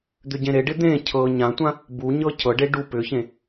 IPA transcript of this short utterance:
d̪ʏɟẽɾeɖɪ d̪ẽ cʰɤ ɲãtʷã | buɲɤ cʰɤɖe ɖu pʏçẽ

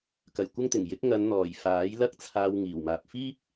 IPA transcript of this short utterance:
kɐ˨˩j kʷɐ˥ŋt̪ɪ˨˩ŋ jɪ˨˥k̚ ŋɐ˨˧nn̪ɔː˨˩j faː˨˥jlɐ˥k̚t͡sʰaː˧wŋiː˨˩w maː˨p̚ fiː˥p̚

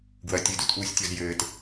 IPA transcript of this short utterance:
ɡwɐ tʲɨdutʔuːsʲtʲɔz jɘːt

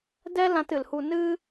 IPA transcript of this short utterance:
dɛ˦lã˧tɨ˨lhu˧ nɨ˦

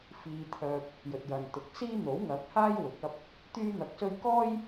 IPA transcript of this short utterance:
fiː˧t̪ʰœː˧p̚ | jɵ˨t̚jɐ˨nt̪ʊ˨˥k̚siː˥ n̪o˨˥wŋɐ˨˥k̚haː˥j wʊ˨˥k̚ɐ˥p̚ | t̪yː˥n̪ɐ˧k̚sɵ˥ɥ kɔː˥j

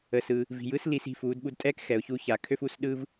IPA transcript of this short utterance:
ə˩sɯ˩ | vi̤˩jɯ˧˥s li˧s i̤˩˧ fuː˩˧dɓu˧dtʼɛː˥k xɛ˩˧ʊ̯çu˧˥ ça˩kʰø˥fu˧˥s ɗɯ˥v

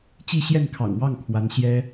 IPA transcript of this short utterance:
t͡ɕi˥˧ɕjɛ˥˩nkʰɑ̰˨˩ŋ wɑ˥˩ŋkʰwa˧˥nɕjɛ˥

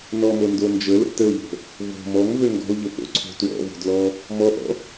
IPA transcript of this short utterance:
nɔmondo nd͡ʒələ̰ təʊ̯ʎə̤ | vo̤ mɔŋvø ŋɡɔ̤ʊ̯ʎəpo̰ ǀʰo̤ twɔ̰vo̤dlɔ | mɔʔɔ̰

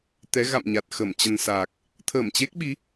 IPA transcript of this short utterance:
t̪ɛ˨˦ ɣa̰˧˨mɲa˨˩t̚ xə˧˩mt͡ɕə˧nsaː˨˩k̚ | t̪ʰəː˧˩mt͡ɕe˦˥k̚ɓi˨˦

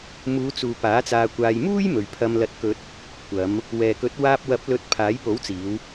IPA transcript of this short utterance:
muː˨˧t͡suː˨ paː˨˥t͡saː˧kʷaː˧j muː˥jmɵ˨ɥ pʰɐ˧mlɐ˧t̚kɵ˧t̚ | kʷɐ˨˧m | wɛː˨kɵ˨˥t̚ waː˧p̚wɐ˨˥p̚ lɵ˧t̚pʰaː˨˥j po˨˥wt͡siː˨˧w

